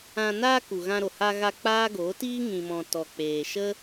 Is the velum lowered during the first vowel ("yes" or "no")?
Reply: yes